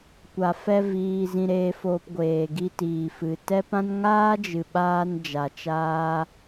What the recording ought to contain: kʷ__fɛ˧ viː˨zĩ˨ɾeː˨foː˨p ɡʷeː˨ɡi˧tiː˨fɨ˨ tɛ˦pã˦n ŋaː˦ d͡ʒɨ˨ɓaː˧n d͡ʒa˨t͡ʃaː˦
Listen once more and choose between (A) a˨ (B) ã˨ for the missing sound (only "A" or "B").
A